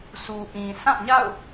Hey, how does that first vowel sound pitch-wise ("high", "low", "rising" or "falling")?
low